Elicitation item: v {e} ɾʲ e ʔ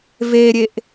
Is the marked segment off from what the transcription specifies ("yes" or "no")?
no